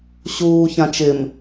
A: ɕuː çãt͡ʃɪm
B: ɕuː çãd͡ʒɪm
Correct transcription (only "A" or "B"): A